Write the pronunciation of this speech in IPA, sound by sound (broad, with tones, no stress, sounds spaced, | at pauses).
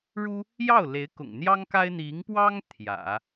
ɻ u˥ | j ɑ˥˩ ʊ̯ l e˧˥ ɪ̯ k ʊ̰˨˩ ŋ n̪ j ɑ˥ ŋ k a˥ ɪ̯ n̪ i˧˥ ŋ p w ɑ˥ ŋ t̪ʰ j ä̰˨˩˦